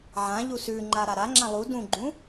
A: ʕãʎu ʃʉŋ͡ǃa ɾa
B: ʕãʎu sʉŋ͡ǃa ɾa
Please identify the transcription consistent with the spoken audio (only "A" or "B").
B